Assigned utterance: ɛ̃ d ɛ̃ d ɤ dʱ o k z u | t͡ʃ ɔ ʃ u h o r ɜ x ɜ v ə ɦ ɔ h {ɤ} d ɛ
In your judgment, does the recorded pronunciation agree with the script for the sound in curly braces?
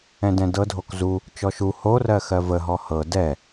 yes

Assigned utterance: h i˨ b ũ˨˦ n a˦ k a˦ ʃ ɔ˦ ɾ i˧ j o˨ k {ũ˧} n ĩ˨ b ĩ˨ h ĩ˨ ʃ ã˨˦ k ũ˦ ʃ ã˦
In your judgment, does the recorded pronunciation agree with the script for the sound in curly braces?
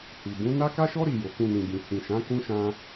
yes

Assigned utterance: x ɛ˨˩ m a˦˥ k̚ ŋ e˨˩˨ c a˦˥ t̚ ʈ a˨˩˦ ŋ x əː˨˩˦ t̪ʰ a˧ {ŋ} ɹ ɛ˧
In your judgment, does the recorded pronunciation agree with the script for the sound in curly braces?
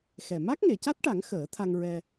yes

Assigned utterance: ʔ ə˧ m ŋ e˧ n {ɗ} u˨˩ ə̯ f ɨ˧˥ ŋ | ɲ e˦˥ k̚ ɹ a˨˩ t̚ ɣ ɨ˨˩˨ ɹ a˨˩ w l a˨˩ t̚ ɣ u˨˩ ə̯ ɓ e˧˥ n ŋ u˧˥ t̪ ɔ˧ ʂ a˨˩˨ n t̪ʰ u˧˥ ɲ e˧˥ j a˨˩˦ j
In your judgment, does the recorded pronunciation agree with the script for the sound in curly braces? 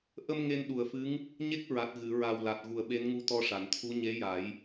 yes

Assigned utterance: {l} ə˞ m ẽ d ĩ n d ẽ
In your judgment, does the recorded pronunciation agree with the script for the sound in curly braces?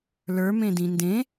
yes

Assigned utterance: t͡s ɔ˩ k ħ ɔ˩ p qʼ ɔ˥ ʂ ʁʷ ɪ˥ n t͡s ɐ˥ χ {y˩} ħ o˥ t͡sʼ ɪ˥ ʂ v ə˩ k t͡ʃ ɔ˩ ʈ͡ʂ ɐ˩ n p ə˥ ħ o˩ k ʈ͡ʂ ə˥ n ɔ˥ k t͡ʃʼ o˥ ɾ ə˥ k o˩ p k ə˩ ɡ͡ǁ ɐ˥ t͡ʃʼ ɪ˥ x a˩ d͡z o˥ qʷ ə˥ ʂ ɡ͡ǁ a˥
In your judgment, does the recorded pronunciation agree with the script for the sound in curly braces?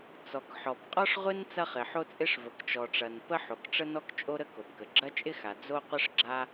no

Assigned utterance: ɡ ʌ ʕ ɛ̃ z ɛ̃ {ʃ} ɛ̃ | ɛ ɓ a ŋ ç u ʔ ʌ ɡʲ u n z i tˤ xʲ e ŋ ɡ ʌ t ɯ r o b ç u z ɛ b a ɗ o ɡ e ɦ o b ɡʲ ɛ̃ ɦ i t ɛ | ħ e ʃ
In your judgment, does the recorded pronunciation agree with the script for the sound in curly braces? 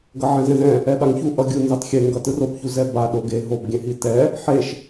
no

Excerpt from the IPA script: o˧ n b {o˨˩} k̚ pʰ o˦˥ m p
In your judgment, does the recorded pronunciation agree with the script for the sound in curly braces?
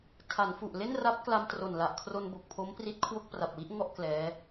yes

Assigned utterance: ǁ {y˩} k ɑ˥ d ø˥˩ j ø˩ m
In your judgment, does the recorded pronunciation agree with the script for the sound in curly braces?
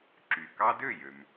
yes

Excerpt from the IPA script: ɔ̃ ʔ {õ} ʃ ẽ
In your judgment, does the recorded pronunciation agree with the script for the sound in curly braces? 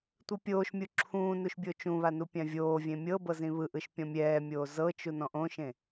yes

